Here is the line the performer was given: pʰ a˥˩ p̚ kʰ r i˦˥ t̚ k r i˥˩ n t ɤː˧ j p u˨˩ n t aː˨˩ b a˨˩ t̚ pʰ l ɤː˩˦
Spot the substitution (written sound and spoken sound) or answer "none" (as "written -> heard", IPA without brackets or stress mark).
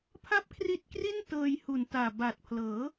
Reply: p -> h